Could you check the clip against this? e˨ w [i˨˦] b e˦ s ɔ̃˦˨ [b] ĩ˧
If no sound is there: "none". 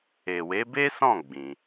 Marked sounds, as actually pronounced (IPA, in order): e˨˦, ɡ͡b

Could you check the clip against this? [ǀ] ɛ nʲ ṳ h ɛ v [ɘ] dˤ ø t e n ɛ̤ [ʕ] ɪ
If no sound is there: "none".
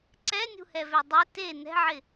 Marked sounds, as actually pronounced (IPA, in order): ǀ, ø, ʕ

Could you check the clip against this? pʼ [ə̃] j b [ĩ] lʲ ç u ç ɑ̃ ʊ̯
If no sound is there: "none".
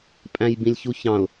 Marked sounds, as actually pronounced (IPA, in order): æ̃, ĩ

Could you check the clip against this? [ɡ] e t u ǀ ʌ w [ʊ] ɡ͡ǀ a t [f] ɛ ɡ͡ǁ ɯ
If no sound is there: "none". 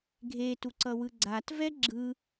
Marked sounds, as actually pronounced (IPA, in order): ɡʱ, ɯ, v

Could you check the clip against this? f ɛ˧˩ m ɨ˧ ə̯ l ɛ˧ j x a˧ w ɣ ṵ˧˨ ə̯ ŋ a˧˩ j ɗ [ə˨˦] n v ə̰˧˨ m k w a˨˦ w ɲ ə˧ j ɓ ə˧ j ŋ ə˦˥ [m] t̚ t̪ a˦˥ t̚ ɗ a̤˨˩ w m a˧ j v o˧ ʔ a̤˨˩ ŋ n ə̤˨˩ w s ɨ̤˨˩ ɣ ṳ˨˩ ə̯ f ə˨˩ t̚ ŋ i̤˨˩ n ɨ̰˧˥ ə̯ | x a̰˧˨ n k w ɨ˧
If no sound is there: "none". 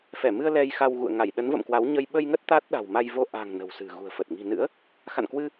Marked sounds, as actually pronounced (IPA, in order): ə˨˦, none

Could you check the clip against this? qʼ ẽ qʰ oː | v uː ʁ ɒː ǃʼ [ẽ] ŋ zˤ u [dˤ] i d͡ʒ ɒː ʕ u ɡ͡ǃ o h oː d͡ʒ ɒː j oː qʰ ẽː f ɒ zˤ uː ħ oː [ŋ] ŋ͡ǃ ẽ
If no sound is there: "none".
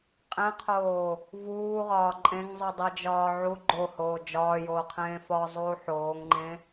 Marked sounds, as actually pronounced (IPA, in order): ẽ, dˤ, ŋ

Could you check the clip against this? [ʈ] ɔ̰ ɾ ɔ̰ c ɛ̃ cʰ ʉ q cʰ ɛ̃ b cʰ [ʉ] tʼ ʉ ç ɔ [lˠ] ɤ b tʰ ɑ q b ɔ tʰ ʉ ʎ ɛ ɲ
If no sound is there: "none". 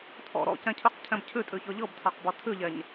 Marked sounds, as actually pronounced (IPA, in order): tʰ, ʉ, ʎ

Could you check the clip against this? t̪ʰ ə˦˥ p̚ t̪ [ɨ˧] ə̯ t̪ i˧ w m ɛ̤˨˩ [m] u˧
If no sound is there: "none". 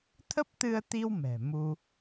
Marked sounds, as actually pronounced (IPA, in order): ɨ˧, m

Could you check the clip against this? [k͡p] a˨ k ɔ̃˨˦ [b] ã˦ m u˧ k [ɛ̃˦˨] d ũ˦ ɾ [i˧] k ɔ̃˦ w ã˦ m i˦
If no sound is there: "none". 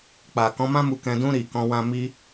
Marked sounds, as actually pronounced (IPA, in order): k͡p, m, ɛ̃˧, i˧

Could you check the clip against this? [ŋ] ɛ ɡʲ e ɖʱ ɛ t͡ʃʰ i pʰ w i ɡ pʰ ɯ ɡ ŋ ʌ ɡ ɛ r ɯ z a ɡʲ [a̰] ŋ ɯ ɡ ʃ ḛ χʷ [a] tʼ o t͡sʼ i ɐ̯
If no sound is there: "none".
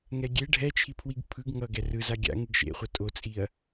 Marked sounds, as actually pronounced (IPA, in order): ŋ, a̰, ʌ

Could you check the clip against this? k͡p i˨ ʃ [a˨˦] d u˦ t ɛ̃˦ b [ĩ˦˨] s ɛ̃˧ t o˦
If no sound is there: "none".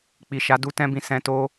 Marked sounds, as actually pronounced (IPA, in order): a˨˦, ĩ˦˨

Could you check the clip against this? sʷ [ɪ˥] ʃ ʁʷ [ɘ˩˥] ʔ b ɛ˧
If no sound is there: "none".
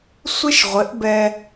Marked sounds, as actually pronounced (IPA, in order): ɪ˥, ɘ˩˥

